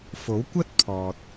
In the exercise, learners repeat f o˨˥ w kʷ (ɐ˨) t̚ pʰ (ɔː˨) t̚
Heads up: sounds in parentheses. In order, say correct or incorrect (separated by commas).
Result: incorrect, correct